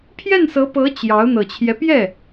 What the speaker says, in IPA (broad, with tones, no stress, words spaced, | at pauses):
pʰjɛ˥˩nsɤ˧˥pɤ˧˥ t͡ɕjɑ˧˥ʊ̯ n̪ɤ˨˩t͡ɕʰjɛ˦ pjɛ˥˩